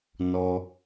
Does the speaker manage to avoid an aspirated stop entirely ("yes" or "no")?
yes